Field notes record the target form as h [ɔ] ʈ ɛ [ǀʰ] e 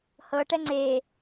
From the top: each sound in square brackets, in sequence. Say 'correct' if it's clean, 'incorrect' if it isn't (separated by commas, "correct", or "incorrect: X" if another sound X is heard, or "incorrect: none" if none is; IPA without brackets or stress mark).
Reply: incorrect: ɤ, incorrect: ŋ͡ǀ